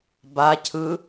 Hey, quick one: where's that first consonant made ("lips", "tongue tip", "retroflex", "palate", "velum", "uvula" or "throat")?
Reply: lips